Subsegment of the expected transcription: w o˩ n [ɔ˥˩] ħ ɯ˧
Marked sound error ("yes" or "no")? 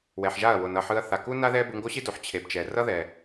yes